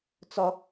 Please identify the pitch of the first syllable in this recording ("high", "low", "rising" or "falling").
high